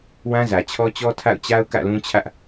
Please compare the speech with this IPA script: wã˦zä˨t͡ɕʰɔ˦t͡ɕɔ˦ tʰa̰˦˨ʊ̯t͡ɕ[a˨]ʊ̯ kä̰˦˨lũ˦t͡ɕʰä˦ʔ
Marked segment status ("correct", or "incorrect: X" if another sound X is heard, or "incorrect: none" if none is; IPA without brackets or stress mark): incorrect: a˦